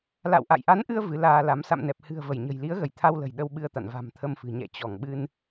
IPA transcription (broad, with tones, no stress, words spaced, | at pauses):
la̰˧˨wʔa̰˧˨jʔa˨˦nʔɨ˧ə̯ vɨ˨˦laː˧la˨˦m sa̰˧˨mnɛ˨˩p̚hɨ̤˨˩ə̯ və˧˩jɲə̤˨˩j li˨˦ə̯ɣə˧˩jt̪ʰa˧wlə̤˨˩j ɗə˧wɓɨ˧ə̯t̪a̰˧˨n va̤˨˩mt̪ʰə˧mfɨ̤˨˩ ɲɛ̰˧˨t͡ɕɔ˧˩ŋɓɨ˧n